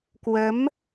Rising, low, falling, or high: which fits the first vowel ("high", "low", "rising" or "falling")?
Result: rising